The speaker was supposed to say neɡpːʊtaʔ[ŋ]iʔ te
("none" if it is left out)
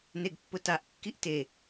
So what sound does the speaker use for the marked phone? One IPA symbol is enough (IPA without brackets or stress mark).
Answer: kː